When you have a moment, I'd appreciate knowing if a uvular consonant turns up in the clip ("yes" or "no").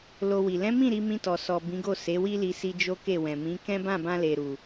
no